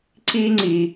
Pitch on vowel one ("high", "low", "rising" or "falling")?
high